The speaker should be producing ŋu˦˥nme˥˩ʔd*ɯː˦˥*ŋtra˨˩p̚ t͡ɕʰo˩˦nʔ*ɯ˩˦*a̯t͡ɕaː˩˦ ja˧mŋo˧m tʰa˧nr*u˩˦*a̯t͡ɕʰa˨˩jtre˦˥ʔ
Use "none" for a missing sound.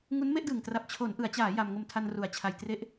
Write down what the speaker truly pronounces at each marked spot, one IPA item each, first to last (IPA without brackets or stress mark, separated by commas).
ɯː˨˩, ɯ˩˦, u˩˦